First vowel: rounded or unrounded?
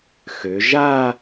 rounded